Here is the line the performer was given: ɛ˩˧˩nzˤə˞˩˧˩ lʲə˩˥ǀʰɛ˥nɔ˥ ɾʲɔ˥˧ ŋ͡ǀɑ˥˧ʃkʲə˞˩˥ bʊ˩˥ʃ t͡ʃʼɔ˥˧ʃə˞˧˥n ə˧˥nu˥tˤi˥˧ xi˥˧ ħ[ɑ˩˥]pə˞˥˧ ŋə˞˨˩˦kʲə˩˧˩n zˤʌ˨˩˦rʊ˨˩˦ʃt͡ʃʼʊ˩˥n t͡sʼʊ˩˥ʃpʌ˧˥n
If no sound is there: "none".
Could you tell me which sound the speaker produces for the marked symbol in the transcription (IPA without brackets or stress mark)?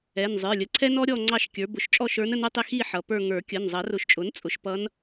ʌ˩˥